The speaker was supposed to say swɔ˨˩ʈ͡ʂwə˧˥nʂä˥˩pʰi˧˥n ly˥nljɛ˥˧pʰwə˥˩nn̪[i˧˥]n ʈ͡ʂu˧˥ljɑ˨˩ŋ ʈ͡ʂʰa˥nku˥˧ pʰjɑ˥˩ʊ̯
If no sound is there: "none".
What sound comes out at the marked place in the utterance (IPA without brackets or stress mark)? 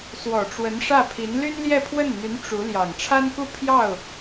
y˧˥